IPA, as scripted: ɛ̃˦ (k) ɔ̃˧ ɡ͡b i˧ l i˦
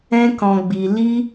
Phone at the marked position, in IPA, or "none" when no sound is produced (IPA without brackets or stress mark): k